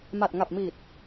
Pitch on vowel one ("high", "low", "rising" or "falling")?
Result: low